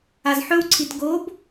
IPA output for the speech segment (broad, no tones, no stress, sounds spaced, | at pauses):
a z ħ ɵ w ǀʰ i t ɡ o b